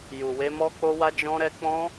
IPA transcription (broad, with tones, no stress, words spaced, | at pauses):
ju˨we˧ mɔ˦k͡po˦wa˦ d͡ʒɔ̃˧ɾɛ˧ k͡pɔ̃˦